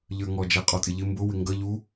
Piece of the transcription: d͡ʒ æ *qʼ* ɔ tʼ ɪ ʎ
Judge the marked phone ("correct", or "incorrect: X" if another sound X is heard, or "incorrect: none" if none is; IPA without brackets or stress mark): correct